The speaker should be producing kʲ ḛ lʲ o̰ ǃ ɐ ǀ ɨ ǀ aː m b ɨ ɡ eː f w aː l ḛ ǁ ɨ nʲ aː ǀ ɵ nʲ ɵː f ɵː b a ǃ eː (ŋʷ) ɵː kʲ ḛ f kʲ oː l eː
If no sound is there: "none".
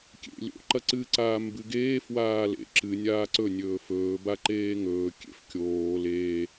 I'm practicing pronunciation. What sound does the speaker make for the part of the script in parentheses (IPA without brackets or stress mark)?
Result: ŋ